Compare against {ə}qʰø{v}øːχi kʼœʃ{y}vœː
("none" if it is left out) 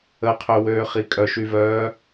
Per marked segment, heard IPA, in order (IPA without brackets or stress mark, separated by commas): ə, w, y